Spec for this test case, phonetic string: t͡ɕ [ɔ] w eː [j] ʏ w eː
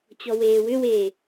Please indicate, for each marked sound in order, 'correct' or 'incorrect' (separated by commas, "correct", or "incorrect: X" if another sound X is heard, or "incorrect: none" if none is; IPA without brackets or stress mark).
correct, incorrect: w